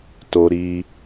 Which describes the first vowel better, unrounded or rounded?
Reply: rounded